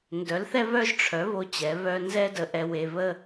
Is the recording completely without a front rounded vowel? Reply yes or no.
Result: no